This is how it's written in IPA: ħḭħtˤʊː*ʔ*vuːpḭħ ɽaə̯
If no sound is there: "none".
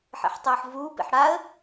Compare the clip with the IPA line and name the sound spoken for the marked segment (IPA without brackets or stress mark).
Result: ħ